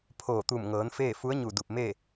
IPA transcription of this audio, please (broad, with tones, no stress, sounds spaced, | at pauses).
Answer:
pʰ oː˧˩ t̪ u˧˩ m ŋ ɤː˩˧ n f eː˥˨ f u˧˥ ə̯ ɲ u˧˩ d u˧˩ p̚ m e˥˨